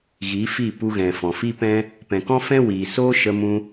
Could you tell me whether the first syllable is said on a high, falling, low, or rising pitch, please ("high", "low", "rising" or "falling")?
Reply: rising